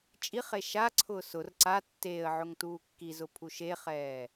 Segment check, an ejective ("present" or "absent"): present